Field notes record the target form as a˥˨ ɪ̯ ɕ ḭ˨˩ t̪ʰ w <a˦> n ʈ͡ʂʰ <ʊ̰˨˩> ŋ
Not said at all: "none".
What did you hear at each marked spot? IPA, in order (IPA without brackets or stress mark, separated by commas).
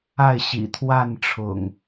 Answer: a˥˨, ʊ̰˨˩